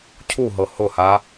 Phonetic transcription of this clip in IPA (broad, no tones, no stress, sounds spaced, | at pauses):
cʰ u ɦ ɤ h ʊ h a